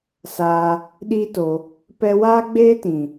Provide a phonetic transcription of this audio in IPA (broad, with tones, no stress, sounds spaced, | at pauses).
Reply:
s aː˧ | ɗ iː˦ t o˧ | p ɛ˧ w aː˦ ɡ͡b eː˦ t ĩ˨